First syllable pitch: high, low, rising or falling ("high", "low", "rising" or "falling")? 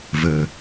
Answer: low